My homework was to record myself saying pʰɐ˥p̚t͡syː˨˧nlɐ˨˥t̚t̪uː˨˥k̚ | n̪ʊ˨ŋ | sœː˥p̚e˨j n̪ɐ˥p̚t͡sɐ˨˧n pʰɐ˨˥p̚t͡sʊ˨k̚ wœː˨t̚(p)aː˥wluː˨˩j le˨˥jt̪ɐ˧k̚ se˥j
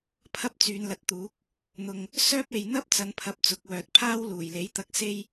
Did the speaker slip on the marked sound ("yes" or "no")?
yes